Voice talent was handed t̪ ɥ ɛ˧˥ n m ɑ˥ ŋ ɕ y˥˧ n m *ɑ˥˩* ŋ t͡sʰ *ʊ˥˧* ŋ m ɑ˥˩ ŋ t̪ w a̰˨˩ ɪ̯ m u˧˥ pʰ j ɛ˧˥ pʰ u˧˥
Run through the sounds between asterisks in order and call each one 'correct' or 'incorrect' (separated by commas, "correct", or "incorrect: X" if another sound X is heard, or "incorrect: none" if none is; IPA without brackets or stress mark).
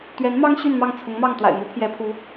correct, incorrect: ʊ˧˥